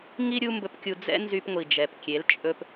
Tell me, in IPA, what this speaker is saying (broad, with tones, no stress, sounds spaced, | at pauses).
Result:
ŋ i˦ ɾʲ u˦ m b ɵ˧ p kʲ u˧ d͡z ɛ̰˦ n z y˧ p ŋʷ i˨ d͡ʒ ɛ˨ p kʲ e˨˦ l t͡ʃʼ ɵ˧ p